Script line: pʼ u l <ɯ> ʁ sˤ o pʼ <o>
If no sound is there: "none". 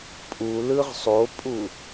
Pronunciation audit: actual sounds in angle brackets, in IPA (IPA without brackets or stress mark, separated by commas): ɯ, u